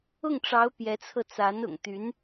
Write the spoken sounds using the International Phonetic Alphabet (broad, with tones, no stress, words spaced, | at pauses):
ʊ˥˩ŋʈ͡ʂɑ˧˥ʊ̯ pjɛ˧˥t͡sʰɤ˧t͡sa˧˥n ʊ̰˨˩ŋt̪y˧˥n